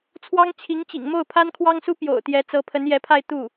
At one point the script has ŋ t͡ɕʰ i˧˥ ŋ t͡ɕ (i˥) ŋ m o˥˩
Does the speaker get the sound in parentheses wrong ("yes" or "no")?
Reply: yes